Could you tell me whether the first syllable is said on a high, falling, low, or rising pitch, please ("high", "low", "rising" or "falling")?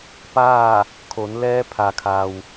falling